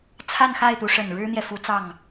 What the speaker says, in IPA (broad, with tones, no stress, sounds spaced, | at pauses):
t͡sʰ a˥˧ n x a˥˩ ɪ̯ t̪ u˧˥ ʂ ə˨˩ n ɻ ɻ̩˥ n̪ j ɛ˨ f u˧˥ t͡s ɑ˥˩ ŋ